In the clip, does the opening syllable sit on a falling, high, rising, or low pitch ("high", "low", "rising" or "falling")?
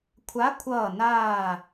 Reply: rising